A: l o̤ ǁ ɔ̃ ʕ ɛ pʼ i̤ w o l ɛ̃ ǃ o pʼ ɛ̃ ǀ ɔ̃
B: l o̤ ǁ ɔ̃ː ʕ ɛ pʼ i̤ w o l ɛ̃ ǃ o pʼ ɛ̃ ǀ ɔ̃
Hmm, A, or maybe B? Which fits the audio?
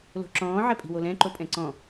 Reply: B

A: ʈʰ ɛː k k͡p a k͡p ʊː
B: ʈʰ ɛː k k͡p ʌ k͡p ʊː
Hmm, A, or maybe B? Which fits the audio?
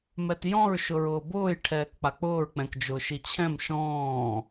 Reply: A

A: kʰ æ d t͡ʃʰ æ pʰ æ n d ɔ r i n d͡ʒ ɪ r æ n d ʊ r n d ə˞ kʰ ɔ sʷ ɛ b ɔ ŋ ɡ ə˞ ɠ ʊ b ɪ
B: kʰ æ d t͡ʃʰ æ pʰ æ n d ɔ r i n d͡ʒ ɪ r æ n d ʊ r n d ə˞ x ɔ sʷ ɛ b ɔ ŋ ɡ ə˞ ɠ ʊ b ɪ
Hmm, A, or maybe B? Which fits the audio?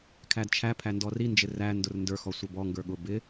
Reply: B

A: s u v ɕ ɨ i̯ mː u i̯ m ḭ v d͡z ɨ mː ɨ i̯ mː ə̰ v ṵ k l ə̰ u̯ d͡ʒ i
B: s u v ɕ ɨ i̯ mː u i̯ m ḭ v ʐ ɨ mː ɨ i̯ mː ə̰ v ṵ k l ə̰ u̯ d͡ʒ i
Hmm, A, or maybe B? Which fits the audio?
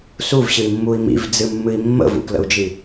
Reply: A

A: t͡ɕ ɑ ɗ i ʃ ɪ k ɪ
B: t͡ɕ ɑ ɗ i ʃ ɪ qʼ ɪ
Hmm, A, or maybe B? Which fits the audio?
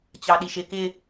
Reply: A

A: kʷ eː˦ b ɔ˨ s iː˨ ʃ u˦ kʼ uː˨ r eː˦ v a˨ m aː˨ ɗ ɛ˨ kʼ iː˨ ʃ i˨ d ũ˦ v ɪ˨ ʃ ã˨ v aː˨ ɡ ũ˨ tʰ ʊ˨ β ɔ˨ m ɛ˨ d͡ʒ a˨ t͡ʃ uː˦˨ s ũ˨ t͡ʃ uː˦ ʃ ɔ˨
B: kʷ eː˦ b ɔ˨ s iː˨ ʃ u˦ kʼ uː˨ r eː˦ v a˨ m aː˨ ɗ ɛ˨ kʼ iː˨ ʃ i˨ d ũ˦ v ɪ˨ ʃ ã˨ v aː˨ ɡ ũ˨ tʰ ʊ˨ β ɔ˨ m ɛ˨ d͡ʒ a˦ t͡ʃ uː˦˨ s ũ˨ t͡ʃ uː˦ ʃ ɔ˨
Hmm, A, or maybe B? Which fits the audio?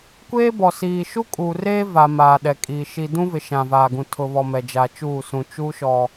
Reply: A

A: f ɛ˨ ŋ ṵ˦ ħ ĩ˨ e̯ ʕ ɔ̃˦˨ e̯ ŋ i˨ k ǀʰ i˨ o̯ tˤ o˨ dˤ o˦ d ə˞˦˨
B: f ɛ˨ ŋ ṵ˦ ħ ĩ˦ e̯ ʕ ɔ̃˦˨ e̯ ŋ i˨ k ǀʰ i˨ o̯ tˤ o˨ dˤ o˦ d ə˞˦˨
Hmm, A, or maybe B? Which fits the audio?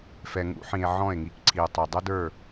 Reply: A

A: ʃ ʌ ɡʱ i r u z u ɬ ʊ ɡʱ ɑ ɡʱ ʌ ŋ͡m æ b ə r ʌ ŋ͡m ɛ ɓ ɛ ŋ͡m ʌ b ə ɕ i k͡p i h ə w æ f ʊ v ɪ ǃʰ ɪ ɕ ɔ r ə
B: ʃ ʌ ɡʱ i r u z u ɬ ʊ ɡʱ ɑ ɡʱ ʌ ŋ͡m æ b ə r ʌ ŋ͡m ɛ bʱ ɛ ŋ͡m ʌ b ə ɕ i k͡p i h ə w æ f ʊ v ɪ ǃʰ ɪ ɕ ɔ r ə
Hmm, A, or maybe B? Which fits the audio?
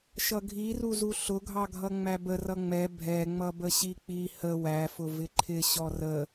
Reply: B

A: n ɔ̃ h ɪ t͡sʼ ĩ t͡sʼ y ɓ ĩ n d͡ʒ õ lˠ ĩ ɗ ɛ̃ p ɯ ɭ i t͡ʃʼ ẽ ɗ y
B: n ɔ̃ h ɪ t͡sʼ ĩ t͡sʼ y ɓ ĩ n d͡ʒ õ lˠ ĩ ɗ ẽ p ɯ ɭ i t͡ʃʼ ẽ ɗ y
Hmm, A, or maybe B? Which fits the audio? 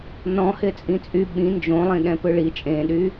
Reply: A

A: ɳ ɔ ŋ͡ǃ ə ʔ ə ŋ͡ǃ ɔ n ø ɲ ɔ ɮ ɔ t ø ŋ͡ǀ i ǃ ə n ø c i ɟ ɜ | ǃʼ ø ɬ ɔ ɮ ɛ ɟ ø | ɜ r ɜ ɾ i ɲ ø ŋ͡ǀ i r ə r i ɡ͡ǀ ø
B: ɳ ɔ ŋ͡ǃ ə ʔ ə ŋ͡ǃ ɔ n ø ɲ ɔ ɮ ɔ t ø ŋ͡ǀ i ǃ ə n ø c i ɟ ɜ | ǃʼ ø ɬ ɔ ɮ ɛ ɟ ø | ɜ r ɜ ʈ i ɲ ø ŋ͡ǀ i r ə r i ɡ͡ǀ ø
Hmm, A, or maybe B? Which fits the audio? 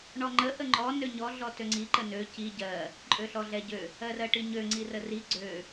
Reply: B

